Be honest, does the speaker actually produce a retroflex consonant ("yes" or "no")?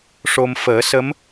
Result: yes